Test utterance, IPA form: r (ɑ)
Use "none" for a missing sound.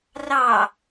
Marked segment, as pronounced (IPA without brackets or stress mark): ɑ